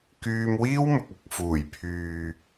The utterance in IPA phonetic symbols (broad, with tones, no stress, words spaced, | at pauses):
kyː˧m wiː˥wmʊ˨k̚ ɐ˨k̚fuː˨˩j pʰyː˨